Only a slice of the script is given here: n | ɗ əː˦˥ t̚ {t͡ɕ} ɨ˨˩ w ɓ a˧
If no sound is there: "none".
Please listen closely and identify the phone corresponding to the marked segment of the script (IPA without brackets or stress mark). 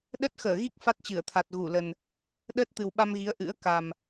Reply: t̪